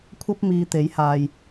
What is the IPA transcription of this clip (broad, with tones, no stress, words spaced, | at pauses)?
kʷʰɐ˧p̚ miː˧ t̪e˨˥jhaː˨j